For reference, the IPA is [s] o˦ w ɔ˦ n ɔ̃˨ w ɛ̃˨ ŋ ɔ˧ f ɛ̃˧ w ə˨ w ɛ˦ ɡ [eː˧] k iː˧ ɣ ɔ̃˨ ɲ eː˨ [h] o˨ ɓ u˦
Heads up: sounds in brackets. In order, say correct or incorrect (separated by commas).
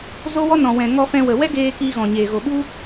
incorrect, correct, incorrect